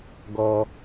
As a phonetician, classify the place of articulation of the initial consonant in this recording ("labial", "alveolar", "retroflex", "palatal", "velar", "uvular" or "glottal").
velar